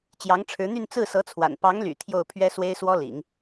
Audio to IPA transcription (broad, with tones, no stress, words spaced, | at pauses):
t͡ɕjɑ˧˥ŋʈ͡ʂʰɻ̩˧˥n̪y˥˧n t͡sɹ̩˥˩sɤ˧˥t͡sʰwa̰˨˩n pɑ˧˥ŋly̰˨˩ t̪ʰjo˥˩ʊ̯pʰɥɛ˥ swe˥ɪ̯swɔ˥lḭ˨˩˦ŋ